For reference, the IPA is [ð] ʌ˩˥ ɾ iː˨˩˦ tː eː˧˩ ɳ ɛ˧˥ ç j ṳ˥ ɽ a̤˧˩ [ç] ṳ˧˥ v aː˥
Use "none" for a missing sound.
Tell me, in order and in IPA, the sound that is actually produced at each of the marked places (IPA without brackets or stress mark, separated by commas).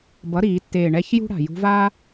b, j